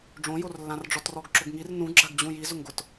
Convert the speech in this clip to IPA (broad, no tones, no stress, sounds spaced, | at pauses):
ɖ͡ʐ õ j o r lː ã r ɖ͡ʐ ɔ t r ɔ ɡ ǁ ʊ ɡ ŋ i r n ũ ɡ͡ǁ a ɡ d͡ʑ ũ j i z ʊ ŋ ɡ ʊ t